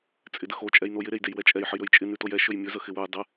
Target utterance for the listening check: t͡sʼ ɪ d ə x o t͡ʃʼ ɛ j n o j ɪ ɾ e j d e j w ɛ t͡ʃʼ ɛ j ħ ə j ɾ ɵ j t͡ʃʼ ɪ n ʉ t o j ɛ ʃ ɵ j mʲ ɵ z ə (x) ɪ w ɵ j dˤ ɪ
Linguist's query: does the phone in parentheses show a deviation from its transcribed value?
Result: no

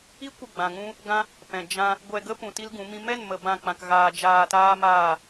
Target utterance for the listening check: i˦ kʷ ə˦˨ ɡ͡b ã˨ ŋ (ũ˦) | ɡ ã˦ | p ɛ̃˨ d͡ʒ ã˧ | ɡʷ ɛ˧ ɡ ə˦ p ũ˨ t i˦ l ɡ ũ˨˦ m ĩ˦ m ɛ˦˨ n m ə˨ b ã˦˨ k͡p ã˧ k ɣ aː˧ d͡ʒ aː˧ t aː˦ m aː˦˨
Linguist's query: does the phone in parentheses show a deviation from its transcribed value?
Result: no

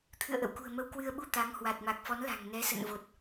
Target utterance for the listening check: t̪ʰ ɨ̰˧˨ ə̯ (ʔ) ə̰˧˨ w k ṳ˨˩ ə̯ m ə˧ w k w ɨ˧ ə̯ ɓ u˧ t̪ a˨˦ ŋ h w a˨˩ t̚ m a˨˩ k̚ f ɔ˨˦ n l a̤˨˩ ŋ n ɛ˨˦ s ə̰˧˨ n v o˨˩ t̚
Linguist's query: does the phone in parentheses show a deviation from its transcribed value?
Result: no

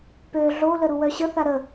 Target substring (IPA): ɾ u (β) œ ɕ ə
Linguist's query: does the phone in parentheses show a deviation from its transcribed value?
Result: yes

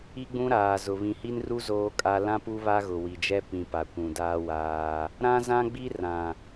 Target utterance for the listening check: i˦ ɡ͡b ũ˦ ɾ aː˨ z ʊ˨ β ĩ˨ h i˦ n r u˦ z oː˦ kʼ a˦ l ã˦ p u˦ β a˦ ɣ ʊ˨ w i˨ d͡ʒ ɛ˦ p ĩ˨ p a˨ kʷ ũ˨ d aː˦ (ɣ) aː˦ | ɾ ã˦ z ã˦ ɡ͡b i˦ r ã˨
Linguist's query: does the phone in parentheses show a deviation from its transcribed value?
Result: yes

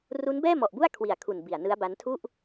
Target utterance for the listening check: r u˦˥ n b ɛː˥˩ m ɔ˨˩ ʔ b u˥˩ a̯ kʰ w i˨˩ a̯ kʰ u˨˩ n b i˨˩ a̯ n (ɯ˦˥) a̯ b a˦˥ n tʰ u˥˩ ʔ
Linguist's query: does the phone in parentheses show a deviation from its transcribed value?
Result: no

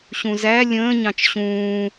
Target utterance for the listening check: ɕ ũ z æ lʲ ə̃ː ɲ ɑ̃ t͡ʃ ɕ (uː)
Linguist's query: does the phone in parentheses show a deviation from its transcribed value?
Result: yes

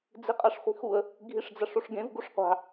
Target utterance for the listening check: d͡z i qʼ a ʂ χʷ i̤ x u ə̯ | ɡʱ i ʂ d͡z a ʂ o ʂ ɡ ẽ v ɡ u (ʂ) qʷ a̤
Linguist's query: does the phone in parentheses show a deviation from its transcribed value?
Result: no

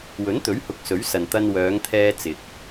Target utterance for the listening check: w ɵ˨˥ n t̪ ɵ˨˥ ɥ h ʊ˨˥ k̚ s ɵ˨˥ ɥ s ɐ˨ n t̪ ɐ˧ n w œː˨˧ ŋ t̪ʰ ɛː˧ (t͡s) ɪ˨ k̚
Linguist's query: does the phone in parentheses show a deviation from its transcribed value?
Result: no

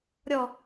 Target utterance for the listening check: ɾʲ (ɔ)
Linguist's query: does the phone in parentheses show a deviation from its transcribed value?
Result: no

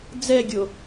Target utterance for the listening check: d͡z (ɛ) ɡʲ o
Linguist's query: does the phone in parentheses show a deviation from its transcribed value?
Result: no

